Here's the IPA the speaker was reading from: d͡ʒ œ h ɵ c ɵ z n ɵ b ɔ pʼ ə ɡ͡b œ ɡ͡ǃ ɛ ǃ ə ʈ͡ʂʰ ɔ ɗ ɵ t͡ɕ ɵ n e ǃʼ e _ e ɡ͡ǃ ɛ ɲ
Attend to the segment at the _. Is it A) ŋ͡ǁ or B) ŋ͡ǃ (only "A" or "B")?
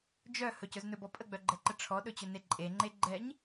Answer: B